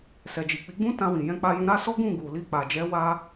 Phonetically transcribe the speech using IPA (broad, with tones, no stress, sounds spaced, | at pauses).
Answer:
s ɛ˨ d͡ʒ i˨ k͡p i˨˦ ɡ͡b ũ˦ t ã˧ w ĩ˨ j ɛ̃˧ k͡p a˧ j ũ˧ ɾ a˦ s ɔ˦ ɡ ũ˦˨ ɡ u˨ l i˧ k͡p a˨ d͡ʒ ɛ˨˦ w a˦